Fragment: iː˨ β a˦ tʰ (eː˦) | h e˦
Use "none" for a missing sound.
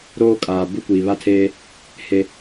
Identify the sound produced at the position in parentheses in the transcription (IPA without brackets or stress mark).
eː˦